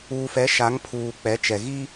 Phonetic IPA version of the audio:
uː˨ f ɛ˨˦ ʃ a˨˦ ŋ pʰ uː˨ k͡p ɛ˨˦ t͡ʃ ɛ˨ ɣ i˦

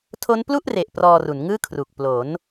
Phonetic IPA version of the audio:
tʰ o˦˥ n p l u˥˩ ʔ r e˨˩ ʔ p r ɔː˧ r u˩˦ n ŋ ɯː˥˩ kʰ r u˨˩ k̚ p l o˩˦ n

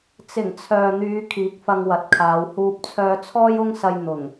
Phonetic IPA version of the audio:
t͡s ɪ˨˩ ŋ t͡sʰ œː˨ n̪ yː˨˧ kʰ iː˨˥ k̚ f ɐ˧ ŋ w ɐ˨ t̚ kʰ aː˨˧ w h uː˧ p̚ t͡sʰ œː˧ t͡sʰ ɔː˥ j ʊ˥ ŋ s ɐ˧ j n̪ ʊ˨˩ ŋ

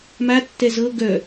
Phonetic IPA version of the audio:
m a tː ɛ z ɤ ɡ œ

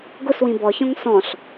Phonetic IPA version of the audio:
ɡ ʊ s w ĩ b ɔ ç ɔ̃ ŋ s ɔ̃ ɬ

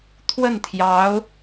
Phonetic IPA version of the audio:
t̪ʰ w ə˥˩ n t̪ʰ j ɑ˧˥ ʊ̯

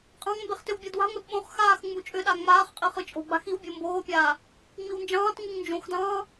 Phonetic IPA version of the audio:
qʼ ɑ̃ ŋ m b e χ t ʏ w bʲ ɤ d w a̤ ŋʷ e d ɓ õ χ x aː x ŋ͡m u t͡ʃʼ ʏ ɗ a ŋ͡m aː χ qʼ i χ ɯ t͡ʃʼ o̤ ɡ͡b a̤ x i w bʲ o m b oː pʲ aː | ŋ͡m i w n d͡ʒ ɑ̃ː t ŋ u ŋ n d͡ʒ õ x d ɑ̃ː

